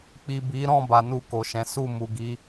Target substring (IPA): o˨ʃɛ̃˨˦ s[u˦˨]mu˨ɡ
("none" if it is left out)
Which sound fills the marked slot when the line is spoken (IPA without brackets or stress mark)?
u˦˨